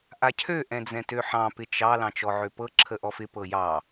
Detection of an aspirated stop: present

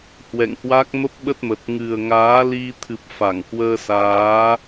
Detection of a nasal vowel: absent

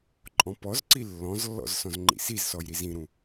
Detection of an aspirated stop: absent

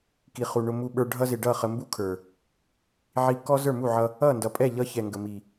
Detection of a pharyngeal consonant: present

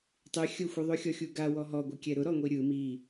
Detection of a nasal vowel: absent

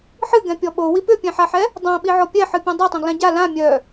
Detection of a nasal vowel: present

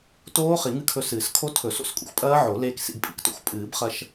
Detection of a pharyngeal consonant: present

